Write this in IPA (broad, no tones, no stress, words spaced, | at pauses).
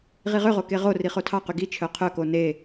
ʁiʁøʁo keʁori χotʰɑqy ɡi t͡ʃʰœqʰœko ne